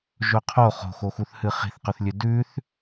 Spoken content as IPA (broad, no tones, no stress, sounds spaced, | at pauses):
ʒ ɵ qʰ o χ o̤ x o x u θ h ɨ χ i̤ θ q ɵ θ lʲ ʉ d ʉ θ